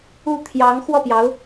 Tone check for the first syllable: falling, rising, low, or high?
falling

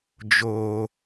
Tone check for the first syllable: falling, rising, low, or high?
high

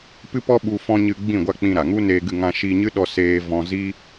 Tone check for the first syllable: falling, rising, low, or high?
high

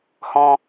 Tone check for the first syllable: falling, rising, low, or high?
high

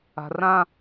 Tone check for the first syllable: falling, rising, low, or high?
low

